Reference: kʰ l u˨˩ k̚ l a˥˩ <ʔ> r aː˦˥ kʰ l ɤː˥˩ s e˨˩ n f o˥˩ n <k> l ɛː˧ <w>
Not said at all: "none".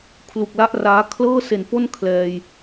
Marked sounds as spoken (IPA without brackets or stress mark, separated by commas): ʔ, kʰ, j